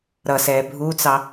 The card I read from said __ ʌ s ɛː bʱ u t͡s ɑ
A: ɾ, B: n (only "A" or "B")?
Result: A